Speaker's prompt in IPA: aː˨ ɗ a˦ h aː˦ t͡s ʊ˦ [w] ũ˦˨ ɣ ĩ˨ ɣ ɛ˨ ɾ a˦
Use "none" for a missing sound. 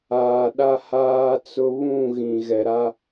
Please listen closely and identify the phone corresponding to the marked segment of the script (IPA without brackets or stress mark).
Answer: β